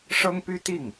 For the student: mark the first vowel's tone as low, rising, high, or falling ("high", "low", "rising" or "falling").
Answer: high